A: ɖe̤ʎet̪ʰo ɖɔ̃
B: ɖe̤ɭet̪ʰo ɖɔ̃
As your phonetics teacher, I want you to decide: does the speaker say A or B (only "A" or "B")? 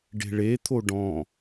B